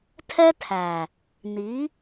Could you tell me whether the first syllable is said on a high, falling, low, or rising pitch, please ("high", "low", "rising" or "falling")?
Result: high